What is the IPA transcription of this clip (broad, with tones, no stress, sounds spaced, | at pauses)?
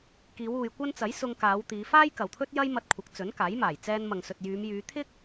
k iː˨˧ w uː˨ j kʷ ɐ˥ n t͡s ɐ˨˥ j s ʊ˧ ŋ k aː˨˧ w t̪ iː˨˧ f aː˥ j k ɐ˨ w t̪ʰ ɵ˥ t̚ j ɐ˥ j m ɐ˧ t̚ kʷʰ ɐ˨˥ k̚ t͡s ɵ˨˥ n k aː˨˥ j m aː˨˩ j t͡s ɛː˧ n m ɐ˨ ŋ s ɵ˨ t̚ j yː˨˧ m j yː˨˧ t̪ʰ ɪ˥ k̚